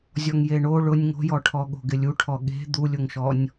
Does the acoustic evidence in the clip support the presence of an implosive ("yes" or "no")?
yes